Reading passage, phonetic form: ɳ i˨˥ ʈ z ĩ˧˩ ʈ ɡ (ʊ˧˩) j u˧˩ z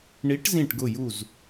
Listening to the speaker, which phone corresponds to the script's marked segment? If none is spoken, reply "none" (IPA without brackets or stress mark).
ʊ˧˩